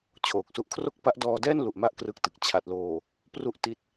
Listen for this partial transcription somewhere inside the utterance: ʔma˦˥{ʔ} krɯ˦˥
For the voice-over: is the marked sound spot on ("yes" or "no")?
yes